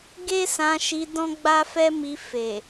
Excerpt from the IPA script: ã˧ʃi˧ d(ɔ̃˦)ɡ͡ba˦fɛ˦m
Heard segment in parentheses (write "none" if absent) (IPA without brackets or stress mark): ɔ̃˦